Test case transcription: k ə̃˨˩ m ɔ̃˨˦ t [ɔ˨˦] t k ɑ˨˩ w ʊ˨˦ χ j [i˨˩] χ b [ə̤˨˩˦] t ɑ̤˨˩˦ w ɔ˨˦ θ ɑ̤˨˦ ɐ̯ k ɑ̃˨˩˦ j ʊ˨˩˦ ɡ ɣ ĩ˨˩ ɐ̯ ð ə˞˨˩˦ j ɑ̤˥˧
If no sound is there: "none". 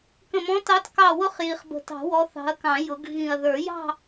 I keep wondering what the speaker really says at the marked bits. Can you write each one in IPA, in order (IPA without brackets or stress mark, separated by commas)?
ɑ˨˦, i˨˩, ə̤˨˩